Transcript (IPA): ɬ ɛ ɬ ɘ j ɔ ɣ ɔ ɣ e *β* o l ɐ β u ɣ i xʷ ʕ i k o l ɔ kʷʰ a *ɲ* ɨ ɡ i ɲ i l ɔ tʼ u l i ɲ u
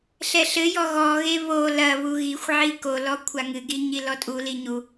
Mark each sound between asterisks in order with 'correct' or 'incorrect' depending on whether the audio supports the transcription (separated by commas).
correct, incorrect